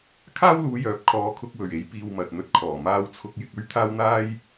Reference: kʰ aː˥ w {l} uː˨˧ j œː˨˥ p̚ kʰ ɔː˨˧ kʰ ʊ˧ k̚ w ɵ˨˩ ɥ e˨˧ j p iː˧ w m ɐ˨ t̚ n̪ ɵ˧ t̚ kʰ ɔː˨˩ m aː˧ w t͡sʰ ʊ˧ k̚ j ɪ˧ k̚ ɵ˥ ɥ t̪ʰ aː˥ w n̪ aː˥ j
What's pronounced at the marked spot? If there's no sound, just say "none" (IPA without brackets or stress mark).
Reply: l